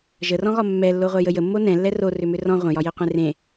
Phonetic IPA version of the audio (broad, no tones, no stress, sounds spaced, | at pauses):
ʒ ə r ɔ̃ ɣ ɒ mː ɛ lː o ʁʷ ɛ j ə j ə mː o n ɛ̃ lː ɛ r o r ʏ m ʏ r ɔ̃ ʁʷ ə̃ j ɒ j e qʷ ẽ r ẽ